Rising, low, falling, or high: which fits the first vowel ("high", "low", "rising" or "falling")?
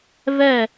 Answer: falling